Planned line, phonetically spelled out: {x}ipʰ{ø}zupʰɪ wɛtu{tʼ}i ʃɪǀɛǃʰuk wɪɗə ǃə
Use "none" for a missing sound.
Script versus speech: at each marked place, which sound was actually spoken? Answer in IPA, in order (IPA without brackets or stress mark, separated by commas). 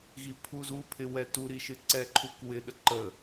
ɣ, u, ɾ